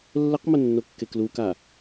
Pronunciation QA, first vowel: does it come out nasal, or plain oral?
oral